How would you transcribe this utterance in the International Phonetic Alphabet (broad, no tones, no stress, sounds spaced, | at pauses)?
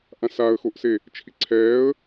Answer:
ʔ ã s a ə̯ x o ʔ s e | t͡ʃʰ i ǀʰ ɛː ə̯